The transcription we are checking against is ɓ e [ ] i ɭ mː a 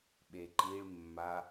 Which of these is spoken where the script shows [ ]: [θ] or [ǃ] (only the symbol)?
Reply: ǃ